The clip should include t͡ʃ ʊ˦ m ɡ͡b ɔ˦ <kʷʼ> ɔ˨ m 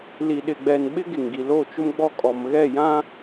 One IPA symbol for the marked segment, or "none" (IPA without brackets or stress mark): kʼ